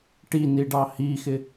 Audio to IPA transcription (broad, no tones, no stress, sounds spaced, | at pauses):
ʈ i n i ɖ ɑ h i x ɪ